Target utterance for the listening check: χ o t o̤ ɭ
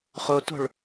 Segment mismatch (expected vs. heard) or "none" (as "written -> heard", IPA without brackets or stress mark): none